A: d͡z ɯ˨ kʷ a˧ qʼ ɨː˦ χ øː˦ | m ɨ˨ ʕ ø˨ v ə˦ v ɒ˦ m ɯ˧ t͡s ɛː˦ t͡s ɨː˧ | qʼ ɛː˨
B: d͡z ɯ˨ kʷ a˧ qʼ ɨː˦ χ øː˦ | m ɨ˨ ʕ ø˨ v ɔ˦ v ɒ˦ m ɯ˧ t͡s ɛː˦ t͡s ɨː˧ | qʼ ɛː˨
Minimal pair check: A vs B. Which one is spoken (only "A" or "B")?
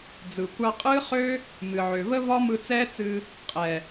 A